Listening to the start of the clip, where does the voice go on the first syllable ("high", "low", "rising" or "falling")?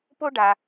high